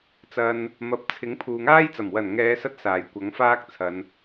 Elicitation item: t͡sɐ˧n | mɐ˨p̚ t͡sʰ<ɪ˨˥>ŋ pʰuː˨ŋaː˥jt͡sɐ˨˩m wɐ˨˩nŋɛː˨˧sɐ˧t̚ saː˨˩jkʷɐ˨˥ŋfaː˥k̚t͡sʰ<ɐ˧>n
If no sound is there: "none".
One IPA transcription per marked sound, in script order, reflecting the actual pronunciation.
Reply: ɪ˨˥, ɐ˨˧

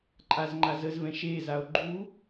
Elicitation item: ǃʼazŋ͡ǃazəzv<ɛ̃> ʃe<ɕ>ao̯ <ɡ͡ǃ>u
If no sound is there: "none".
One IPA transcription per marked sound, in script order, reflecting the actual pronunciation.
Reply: ɛ̃, z, ɡ͡ǃ

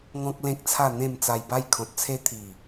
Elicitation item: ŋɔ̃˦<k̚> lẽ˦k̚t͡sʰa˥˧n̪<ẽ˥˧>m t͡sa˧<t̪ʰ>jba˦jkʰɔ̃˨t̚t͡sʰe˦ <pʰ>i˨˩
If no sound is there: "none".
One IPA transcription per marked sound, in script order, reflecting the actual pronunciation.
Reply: k̚, ẽ˥˧, none, t̪ʰ

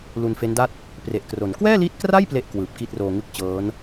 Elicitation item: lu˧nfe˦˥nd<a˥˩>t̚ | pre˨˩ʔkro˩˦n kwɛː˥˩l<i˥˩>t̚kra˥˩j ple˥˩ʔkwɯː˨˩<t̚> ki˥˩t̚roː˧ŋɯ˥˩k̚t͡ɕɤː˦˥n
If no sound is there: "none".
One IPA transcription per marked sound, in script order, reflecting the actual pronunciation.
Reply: a˥˩, i˦˥, p̚

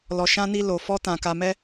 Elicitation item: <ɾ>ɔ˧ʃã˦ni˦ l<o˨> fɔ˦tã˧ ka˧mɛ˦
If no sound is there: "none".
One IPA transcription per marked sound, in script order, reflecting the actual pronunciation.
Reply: l, o˧

